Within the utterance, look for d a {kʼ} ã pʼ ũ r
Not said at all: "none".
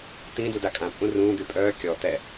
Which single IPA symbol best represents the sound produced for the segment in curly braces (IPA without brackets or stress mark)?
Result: kʼ